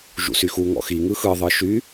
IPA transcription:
ʒ ṵ s y x u ŋ ɔ̰ x i ŋ ɯ x ɯ ðˤ ɯ ʃ y

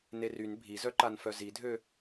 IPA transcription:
n e r y n bʱ i z œ ǃ a n f œ z i dʱ ø

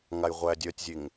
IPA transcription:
ŋ a j ʁʷ æ dʲ œ tʲ zʲ e ŋ

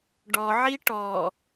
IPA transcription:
ɖ ɔ ʕ i ʈ ɔ

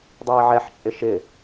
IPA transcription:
dˤ iː ʕ ɛ ħ t͡ʃʼ ɪ ʃ ɪ

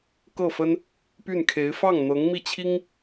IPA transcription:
k ɤ˥˩ f ə˥ n | p y˥˩ n kʰ e˧˥ ɪ̯ f ɑ˥˩ ŋ n̪ ɤ˧˥ ŋ m i˥˩ t͡ɕʰ i˥ ŋ

